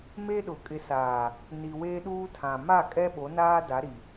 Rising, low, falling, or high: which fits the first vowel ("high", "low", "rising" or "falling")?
high